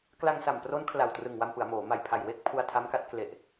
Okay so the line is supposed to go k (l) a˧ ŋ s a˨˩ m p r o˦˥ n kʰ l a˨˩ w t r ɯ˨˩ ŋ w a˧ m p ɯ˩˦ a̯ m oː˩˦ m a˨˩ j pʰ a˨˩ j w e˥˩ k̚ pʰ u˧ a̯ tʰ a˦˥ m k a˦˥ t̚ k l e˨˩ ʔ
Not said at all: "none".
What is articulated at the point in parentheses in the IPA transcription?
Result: l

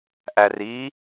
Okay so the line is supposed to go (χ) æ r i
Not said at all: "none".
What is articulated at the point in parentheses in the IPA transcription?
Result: ʔ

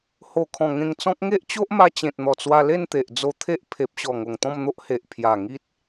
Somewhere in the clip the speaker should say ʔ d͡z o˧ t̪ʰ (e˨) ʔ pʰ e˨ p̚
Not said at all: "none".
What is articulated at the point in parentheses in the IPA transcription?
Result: e˦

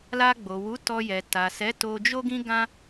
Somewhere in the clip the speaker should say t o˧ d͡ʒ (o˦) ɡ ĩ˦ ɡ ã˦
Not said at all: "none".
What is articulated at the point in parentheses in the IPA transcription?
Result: o˦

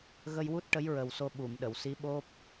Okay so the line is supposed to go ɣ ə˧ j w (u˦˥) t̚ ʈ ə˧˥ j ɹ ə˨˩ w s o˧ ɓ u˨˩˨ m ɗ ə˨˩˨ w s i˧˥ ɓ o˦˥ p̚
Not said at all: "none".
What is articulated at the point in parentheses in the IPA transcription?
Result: u˦˥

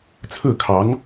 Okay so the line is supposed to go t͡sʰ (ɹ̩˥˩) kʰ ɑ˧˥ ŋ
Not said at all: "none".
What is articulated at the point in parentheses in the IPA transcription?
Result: ɹ̩˥˩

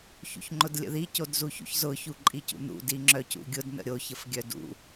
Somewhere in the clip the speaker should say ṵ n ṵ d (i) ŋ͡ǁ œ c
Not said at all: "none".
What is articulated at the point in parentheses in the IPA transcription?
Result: i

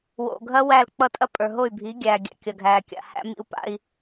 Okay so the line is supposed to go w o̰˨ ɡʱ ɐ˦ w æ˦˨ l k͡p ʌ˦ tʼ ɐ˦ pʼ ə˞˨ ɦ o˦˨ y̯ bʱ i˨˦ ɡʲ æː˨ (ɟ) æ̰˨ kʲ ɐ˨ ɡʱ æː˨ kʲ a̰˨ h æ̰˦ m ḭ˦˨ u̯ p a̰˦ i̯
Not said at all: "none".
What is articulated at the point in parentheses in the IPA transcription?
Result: ɡʲ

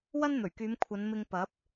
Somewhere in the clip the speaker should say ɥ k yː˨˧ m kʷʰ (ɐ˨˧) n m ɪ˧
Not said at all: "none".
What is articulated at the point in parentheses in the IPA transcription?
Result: ɐ˨˧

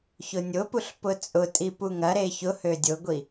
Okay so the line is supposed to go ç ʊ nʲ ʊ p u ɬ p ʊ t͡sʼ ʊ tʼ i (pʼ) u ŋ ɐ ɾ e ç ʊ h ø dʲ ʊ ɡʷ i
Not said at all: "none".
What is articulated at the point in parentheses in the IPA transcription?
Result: p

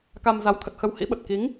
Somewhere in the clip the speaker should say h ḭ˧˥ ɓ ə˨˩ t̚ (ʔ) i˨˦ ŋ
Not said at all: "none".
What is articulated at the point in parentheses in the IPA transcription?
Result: k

